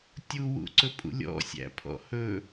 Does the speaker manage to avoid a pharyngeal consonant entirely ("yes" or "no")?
yes